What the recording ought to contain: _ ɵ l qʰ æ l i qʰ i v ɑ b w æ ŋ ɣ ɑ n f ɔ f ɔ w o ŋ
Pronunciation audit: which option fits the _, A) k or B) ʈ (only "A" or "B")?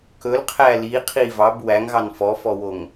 A